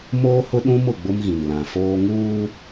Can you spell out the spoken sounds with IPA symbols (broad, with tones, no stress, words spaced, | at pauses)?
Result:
moː˦hʊ˦ɗũ˦mʊ˦˨ ɡ͡bʊ˦mɣĩ˨nlã˨foː˦ ŋuː˦